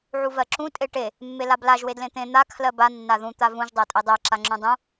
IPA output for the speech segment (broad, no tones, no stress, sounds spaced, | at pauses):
ʕ u v ɜ ǁ ũ tʼ e ʈ e | mː e l a b l a ʒ w e d l ẽ t̪ ẽ n̪ a kʰ l ɜ b a nː a ð ũ t̪ a v ũ ʒ dˤ a tʼ e dˤ ɜ ǁ a ŋ͡ǁ ũ dˤ ũ